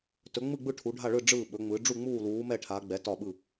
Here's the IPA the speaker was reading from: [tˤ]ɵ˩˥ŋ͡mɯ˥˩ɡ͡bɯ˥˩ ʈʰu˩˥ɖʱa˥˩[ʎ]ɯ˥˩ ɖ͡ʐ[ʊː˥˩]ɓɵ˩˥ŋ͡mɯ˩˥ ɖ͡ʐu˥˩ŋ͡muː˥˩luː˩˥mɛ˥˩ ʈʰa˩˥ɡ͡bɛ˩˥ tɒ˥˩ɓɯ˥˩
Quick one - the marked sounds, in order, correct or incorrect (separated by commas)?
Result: incorrect, incorrect, incorrect